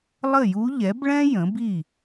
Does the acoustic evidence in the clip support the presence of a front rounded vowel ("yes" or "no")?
no